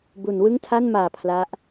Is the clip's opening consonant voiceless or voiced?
voiced